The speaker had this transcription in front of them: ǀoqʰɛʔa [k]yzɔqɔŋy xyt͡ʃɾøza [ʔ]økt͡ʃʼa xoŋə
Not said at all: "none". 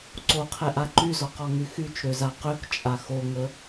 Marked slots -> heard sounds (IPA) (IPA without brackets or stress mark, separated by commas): ǃ, q